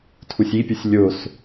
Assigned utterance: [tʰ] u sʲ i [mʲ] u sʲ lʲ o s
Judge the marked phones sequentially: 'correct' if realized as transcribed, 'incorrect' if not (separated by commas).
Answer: correct, incorrect